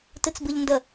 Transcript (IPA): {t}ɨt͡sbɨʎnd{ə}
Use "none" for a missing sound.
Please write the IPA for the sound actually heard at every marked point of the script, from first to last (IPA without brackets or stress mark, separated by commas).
t, ə